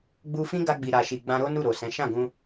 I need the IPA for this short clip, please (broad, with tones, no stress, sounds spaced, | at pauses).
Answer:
ɡ͡b u˧ f ĩ˦ ɡ a˧ ɡ͡b i˨ ɾ a˨ ʃ i˨ ɡ͡b ã˧ ɾ o˦ n u˦˨ ɾ o˨ s ɛ̃˨˦ ʃ ã˦˨ ɡ ũ˧